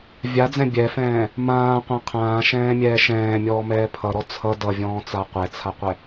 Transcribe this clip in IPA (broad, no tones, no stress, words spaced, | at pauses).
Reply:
vʲad͡zɛ̃ bʲɛfɛ̃ː | mãːqʷã qʰãːʃɛ̃ːmʲɛː ʃɛ̃ːmʲɔːmɛː pʰʌɾɔ t͡sʰʌ dʌvʲɔ̃ːt͡sa qʷɛt͡sʰaqʷɛ